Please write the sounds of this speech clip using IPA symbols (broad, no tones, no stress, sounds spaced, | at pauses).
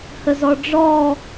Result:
h ə z ɔ ɖ͡ʐ ɔ